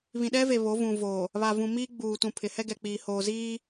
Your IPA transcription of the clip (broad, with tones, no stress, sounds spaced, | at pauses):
β ĩ˨ ɗ ɛ˦ v e˨ β o˨˦ v ũ˨ v oː˨ | β a˨ v ũ˨ m iː˦ ɡ͡b uː˨ t ũ˨ pʰ ɪ˨ h ɛ˦ ɡ ɛ˨ k͡p iː˨ h oː˨ z iː˦